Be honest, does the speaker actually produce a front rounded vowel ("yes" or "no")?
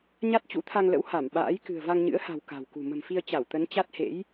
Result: no